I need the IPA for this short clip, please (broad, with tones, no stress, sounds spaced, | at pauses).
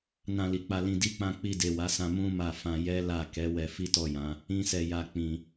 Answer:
n ã˧ l i˨ k͡p a˧ l ĩ˧ d i˧ k͡p ã˧ k͡p i˧ d e˨ w a˨˦ s ã˧ m ũ˦ m a˦˨ f ã˧ j ɛ˦ l a˦˨ k ɛ˨˦ w ɛ˧ f i˦ t ɔ˦˨ j ã˨˦ | ĩ˦ s ɛ˧ j a˦ k͡p ĩ˧